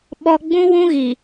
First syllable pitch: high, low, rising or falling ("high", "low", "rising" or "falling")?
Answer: high